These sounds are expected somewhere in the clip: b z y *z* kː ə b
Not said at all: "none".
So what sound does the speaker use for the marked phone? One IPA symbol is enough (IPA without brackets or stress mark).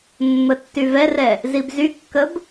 none